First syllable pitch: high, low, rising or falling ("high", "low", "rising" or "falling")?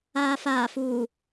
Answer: low